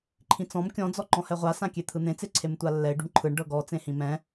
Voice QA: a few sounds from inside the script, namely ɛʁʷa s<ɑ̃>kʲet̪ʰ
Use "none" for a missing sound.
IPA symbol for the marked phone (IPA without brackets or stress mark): ã